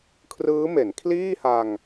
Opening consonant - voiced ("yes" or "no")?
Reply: no